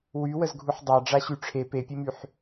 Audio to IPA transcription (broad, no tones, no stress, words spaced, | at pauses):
wywəzɡʱuħ dˤaɖ͡ʐaɕy ʈ͡ʂʰe pepʲemyħ